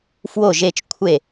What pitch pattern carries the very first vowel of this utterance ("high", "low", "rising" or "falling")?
falling